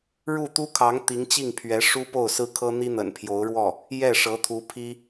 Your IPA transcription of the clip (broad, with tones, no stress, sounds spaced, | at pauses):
ɻ u˥˩ t̪ u˥ kʰ ɑ˧˥ ŋ t̪ i˧˥ ŋ t͡ɕ i˥˩ ŋ pʰ ɥ ɛ˧˥ ʂ u˥ p o˥˩ ʊ̯ s ɹ̩˥ kʰ ɤ˥ n̪ i˥ n̪ ə̰˨˩ n pʰ j o˧˥ ʊ̯ ɻ w ɔ˥˩ | j ɛ˥˩ ʂ ɤ˧˥ t̪ʰ u˧˥ pʰ i˥